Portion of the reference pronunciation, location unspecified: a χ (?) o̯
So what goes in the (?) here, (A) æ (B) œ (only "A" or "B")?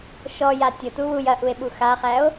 A